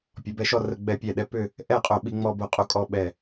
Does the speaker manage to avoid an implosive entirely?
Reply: no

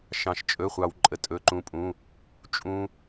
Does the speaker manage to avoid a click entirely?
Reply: no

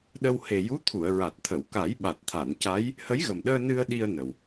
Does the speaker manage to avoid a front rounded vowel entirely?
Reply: yes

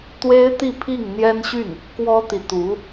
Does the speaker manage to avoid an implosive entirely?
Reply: yes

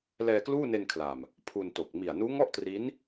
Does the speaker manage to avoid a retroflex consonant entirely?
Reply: yes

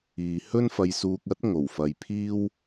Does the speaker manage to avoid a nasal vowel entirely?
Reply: yes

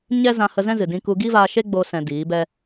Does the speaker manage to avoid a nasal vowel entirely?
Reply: no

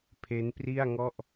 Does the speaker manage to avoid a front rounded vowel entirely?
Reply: yes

